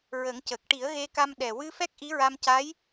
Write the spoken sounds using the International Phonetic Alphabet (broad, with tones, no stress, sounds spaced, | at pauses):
ɹ ə˨˩˦ ŋ c ə˨˩ k̚ ʈ i˨˩˦ ə̯ ɣ e˧ k a˧ m ɗ ɛ˨˩ w ɨ˧ f ɛ˦˥ k̚ ʔ i˧˥ ɹ a˧ m c a˧˥ j